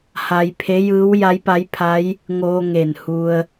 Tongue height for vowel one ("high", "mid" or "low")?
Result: low